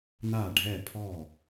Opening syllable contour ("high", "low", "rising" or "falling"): falling